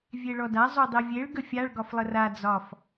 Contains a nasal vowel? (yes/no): no